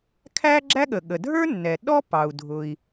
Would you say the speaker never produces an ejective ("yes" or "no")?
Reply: yes